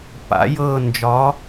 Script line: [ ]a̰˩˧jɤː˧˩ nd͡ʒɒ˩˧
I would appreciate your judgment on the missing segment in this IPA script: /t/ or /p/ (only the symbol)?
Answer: p